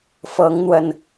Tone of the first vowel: rising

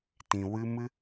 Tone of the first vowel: low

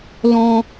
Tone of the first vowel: high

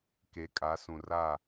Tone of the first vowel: rising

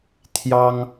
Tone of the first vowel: high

